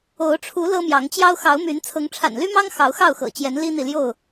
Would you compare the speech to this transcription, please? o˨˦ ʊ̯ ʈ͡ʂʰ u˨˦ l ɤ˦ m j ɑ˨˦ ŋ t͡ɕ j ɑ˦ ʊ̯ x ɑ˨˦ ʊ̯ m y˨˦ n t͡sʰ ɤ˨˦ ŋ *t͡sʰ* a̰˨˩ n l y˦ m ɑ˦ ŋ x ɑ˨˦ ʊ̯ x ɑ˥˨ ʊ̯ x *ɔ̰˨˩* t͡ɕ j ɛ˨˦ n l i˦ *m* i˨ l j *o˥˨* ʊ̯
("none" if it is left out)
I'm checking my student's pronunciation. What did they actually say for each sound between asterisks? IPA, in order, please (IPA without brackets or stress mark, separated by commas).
ʈ͡ʂʰ, ɤ̰˨˩, n̪, o˥˨